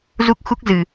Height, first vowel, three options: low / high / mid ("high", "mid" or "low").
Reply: high